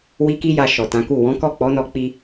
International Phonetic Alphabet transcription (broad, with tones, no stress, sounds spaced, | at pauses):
w i˦ k i˦ j a˧ ʃ ɔ˨ t ã˨˦ k u˦˨ w ɔ̃˨˦ k ɔ˦˨ k͡p ɔ˨˦ n ɔ˧ k͡p i˧